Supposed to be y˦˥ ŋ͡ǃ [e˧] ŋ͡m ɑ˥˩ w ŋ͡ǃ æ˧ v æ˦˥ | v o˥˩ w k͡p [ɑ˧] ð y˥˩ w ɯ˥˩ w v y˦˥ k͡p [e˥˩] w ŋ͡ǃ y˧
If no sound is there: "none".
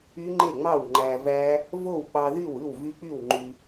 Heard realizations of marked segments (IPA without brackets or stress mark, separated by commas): e˥˩, ɑ˧, y˥˩